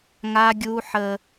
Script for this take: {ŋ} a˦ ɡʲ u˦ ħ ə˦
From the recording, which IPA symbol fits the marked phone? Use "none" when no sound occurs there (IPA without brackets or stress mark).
ŋ